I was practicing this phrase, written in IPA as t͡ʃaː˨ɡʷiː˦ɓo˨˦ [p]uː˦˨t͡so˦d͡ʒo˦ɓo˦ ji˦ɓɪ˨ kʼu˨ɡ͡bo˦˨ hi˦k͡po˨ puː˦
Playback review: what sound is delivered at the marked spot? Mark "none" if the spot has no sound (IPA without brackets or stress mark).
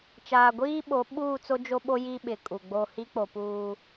ɓ